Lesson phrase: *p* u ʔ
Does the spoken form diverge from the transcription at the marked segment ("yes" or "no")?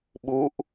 yes